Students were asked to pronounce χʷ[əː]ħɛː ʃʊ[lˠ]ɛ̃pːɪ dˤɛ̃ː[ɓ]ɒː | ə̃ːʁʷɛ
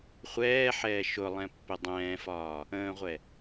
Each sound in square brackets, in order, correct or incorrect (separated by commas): incorrect, correct, incorrect